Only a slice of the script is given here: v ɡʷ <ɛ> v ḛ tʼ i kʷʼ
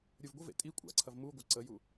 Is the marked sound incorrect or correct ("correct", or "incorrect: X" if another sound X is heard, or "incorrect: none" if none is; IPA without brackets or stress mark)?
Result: incorrect: ə